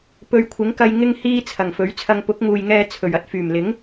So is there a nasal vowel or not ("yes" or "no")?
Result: no